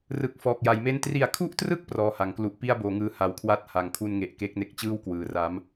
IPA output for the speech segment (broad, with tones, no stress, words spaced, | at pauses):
rɯ˨˩k̚ fɔː˨˩k̚ja˩˦jme˥˩n tri˨˩a̯kʰu˥˩ʔtrɯ˥˩k̚ prɔː˧ha˩˦ŋklu˦˥ʔ pi˥˩a̯boː˩˦ŋɯː˧ ha˨˩wkʰwa˥˩t̚ ha˩˦ŋkʰu˧nŋe˨˩ʔ ke˦˥k̚ne˦˥k̚t͡ɕɯː˥˩w kwɯː˩˦ ra˦˥m